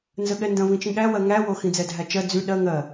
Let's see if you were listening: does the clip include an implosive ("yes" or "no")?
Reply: yes